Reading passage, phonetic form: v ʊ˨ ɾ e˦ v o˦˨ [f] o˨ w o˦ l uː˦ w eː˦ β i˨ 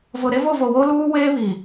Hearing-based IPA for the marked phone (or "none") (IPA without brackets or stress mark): v